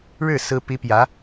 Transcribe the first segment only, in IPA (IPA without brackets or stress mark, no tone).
ɻ